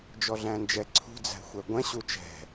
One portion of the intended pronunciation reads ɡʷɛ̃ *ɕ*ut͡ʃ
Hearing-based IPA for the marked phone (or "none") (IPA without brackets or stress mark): ɕ